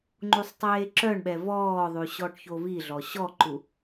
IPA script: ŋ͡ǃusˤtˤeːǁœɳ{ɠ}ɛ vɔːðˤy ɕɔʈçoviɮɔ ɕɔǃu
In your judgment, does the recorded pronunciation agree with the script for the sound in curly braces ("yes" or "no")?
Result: no